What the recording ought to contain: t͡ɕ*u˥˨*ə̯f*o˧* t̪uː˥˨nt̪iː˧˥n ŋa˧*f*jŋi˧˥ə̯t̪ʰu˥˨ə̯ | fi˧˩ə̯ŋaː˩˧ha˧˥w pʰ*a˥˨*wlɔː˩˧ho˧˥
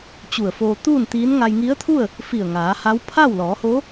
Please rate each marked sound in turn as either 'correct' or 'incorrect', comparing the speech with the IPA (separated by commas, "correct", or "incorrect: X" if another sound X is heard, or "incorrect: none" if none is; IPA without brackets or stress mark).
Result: incorrect: u˧˩, incorrect: oː˧, incorrect: none, correct